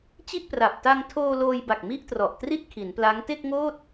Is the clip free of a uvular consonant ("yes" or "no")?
yes